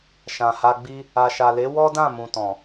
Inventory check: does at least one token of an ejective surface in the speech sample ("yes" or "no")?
no